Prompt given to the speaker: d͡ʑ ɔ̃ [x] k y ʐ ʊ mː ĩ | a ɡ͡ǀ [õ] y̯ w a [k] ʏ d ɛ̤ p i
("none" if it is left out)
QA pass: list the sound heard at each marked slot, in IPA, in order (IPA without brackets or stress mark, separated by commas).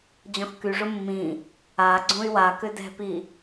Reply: x, õ, k